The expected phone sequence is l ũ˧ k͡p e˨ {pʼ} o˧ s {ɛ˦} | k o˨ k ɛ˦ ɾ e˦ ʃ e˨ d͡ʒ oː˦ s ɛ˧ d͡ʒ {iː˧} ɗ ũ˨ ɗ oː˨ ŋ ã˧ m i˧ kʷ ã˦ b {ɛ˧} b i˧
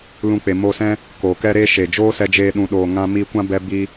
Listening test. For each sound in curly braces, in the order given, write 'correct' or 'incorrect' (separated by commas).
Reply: incorrect, incorrect, incorrect, correct